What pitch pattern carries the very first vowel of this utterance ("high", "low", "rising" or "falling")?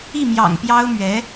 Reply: falling